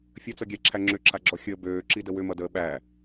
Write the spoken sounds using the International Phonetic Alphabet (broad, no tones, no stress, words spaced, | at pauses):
fʲət͡sʌɡʲæ ǁʰæŋ͡ǁʏǁʰaɡ͡ǁɔ xʲəːbøː ǁidəwʏmʌ dəːɓæ